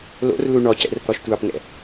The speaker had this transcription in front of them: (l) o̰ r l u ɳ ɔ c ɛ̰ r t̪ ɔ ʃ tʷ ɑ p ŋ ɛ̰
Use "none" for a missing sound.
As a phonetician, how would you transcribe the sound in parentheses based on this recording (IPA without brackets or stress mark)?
l